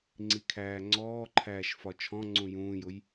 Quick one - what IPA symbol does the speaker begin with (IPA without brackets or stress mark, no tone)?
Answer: ŋ͡ǀ